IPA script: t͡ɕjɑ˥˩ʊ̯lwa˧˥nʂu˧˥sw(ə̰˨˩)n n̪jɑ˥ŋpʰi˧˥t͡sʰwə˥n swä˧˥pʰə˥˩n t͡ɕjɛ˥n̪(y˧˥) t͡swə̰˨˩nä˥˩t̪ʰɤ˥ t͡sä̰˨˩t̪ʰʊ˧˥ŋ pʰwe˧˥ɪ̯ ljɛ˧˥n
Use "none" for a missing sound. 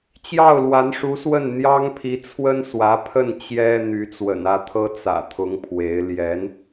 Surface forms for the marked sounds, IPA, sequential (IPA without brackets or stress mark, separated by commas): ə˥˩, y˧˥